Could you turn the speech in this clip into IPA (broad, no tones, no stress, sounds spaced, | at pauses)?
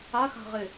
a x a̤ ʁ e